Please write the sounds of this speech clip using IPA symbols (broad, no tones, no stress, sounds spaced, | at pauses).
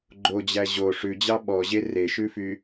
ɡ͡ǃ o d͡ʑ æ ʑ o ʂ ʉ d͡ʑ ɑ ɓ ɔ ʑ e r e ʃ ʉ f y